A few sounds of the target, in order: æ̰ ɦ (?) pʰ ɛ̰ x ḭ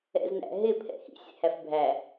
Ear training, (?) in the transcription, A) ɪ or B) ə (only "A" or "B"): A